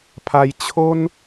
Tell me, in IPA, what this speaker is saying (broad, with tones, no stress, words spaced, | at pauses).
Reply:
pʰa˧jt͡ɕʰo˦n